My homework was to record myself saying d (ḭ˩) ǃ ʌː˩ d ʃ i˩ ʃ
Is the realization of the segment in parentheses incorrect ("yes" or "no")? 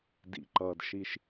no